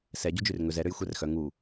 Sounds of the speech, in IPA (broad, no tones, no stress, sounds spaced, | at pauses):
s ɛ ɟ u d͡ʒ ʉ r ŋ ɵ z ɛ ɾ ø j xʷ ɛ r x œ ŋ u